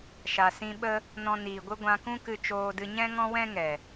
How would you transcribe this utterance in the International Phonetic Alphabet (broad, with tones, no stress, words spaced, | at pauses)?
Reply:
ʃa˨sĩ˧ɓə˦ | nɔ̃˧ niː˨ɡʷɨ˦ ɡʷã˧kũ˦kɨ˧ t͡ʃoː˧dɨ˧ ɲɛ̃˦ŋɔ̃˦wɛ̃˦ŋɛ˨